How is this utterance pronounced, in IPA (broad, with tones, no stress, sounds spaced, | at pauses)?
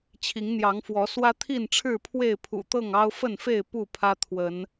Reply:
t͡ɕʰ i˨˦ ŋ n̪ j ɑ˨˦ ŋ f w ɔ˨˦ s w ä˦ t̪ʰ i˥˨ n ʈ͡ʂʰ ɻ̩˥˨ pʰ w e˥˨ ɪ̯ pʰ ṵ˨˩ t̪ ɤ˥˨ ŋ ɑ˦ ʊ̯ f ə˥˨ n f e˥˨ ɪ̯ p u˥˨ pʰ ä˦ t̪ʰ w ə˨˦ n